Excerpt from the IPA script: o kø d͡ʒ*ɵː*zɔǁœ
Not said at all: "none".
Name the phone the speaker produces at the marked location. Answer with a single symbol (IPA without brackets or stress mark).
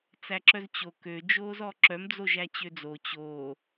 oː